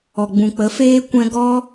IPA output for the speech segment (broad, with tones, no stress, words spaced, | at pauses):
ɔ˨ɡ͡bũ˨k͡pə˨˦ feː˧kʷɛ̃˧ ɡɔ˧